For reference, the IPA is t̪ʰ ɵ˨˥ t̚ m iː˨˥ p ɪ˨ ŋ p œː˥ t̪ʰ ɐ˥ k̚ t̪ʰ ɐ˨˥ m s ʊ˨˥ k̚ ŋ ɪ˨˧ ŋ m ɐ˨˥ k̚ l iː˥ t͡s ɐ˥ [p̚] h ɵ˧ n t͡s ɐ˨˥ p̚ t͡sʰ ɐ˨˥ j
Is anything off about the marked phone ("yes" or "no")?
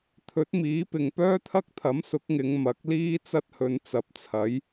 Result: yes